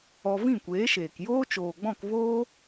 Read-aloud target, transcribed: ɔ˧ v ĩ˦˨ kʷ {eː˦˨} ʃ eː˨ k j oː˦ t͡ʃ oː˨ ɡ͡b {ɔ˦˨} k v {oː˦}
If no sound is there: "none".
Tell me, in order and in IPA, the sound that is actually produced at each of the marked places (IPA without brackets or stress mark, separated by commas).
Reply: eː˨˦, ɔ̃˦˨, oː˦